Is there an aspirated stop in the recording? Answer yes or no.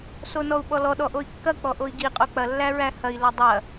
no